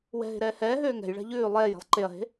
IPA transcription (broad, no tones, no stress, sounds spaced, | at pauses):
w ɛ̤ ɦ e̤ ɾ ɛː h ɛː ɦ øː ŋ ɛ̤ j ɭ ɛ̤ ʎ ʉː lˠ ɛː j e̤ lˠ ǃ e ɐ̯ ɦ e̤